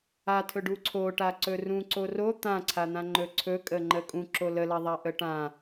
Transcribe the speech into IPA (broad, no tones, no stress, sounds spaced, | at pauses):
a tʰ ɵ ɖ u ǀʰ o ʈ a ǀ ɵ r ũ ǀ o r o t̪ ã ǀʰ a n̪ ã ŋ͡ǃ ɵ ǀʰ ɵ kʼ ə ŋ͡ǃ ə kʼ ũ ǁ o l ə l a ðˤ a ʔ ə ʈ ã